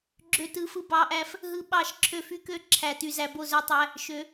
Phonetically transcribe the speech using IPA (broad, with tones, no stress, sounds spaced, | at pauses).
ɡ͡ǁ ø˥˧ t ɯ˦˥ f ɯ˥˧ b ɑ˦˥ ʔ æ˦˥ f | ɦ ɯ˦˥ ɓ ɑ˥˧ ʃ ǁʰ ø˥˧ f y˦˥ k ø˦˥ ǁʰ æ˦˥ t y˦˥ z æ˦˥ b o˥˧ z ø˦˥ tˤ æ˦˥ | ʃ ø˦˥